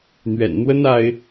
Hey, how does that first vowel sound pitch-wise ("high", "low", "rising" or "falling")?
low